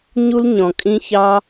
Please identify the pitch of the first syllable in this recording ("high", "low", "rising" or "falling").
high